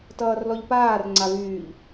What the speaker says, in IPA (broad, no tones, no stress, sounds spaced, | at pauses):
t ʌː r l ɔ ʎ p aː r ŋ͡ǀ a v yː ʎ